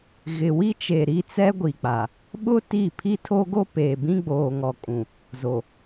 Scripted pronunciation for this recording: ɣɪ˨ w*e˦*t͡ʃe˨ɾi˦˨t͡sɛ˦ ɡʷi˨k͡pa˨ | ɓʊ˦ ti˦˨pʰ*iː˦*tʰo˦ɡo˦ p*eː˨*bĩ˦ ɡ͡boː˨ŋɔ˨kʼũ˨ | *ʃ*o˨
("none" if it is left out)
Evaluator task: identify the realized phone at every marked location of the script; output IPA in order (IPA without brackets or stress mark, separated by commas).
i˦, i˦, eː˨, z